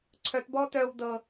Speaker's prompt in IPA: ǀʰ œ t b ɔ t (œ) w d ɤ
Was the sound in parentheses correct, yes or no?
yes